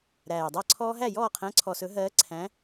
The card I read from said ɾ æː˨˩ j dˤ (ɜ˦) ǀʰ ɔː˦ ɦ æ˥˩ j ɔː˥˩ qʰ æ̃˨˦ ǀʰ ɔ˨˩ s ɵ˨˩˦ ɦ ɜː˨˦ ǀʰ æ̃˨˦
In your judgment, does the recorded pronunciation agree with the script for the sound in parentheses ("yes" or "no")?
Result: no